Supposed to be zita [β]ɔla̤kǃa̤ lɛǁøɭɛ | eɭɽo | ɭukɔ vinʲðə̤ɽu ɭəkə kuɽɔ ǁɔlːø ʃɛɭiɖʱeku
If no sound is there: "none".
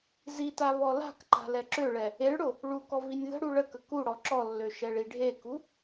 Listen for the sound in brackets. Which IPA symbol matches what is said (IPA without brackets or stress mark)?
β